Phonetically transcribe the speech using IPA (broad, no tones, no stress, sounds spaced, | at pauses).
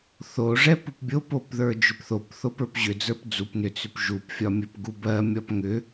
θ o ʐ ɛ p u p bʲ o p o p ð ə˞ d͡ʒ ʏ p θ o p θ o p ə˞ p ʑ ʏ d͡z ə˞ p d͡z u p n ʏ t͡s ʏ p ʒ u p fʲ ɒ mʲ ɜ p ɡ u b ɜ mʲ ɒ p ŋ ʏ